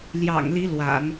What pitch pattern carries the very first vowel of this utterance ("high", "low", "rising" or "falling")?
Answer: low